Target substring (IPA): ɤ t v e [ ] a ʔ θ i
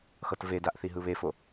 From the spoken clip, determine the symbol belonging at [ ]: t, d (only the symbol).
d